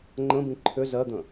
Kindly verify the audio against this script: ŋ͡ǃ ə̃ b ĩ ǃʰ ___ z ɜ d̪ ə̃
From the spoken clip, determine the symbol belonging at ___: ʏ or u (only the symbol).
ʏ